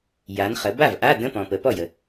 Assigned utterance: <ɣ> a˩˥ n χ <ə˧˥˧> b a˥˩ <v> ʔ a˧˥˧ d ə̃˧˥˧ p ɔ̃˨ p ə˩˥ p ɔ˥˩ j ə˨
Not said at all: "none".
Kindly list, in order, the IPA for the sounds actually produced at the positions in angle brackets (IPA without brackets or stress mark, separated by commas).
j, ə˩˥, v